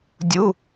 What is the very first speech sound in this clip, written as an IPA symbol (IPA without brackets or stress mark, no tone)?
dʲ